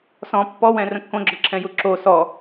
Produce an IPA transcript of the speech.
s ɔ̃ pː ɔ w ɛ̃ r ə̃ kː õ ɡ͡ǁ ɔ ǁʰ ɛ̃ j u ǁ o s ɔ

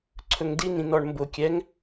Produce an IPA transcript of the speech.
ǀʰ ɵ ŋ d i n ĩ n ɔ ɳ m b ʊ kʲ ɛ ŋ

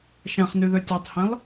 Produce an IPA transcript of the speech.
ʃ æ̃ χ n y ð ø tʲ o tˤ h ẽ lˠ

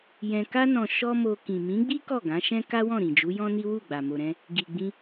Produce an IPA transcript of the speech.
j ɛ̃˧ k a˦ n ɔ̃˧ ʃ ɔ˦ m o˧ k ĩ˨ m ĩ˨˦ ɡ͡b i˦ k ɔ˦˨ ɡ ã˨˦ ʃ ɛ̃˦ k a˦ w ɔ̃˦˨ ɾ ĩ˨ d͡ʒ u˨˦ j ɔ̃˦ n i˦ w u˦˨ ɡ͡b a˨ m o˨ ɾ ɛ̃˧ | ɡ i˨ ɡ͡b ĩ˧

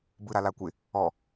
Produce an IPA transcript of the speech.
b ɯ ɾ a l a kʷ ɪ | ɔ

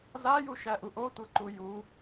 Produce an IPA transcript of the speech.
z a j u ʃ æ ʔ u ʔ o tʷ ɤ ǃ u j u

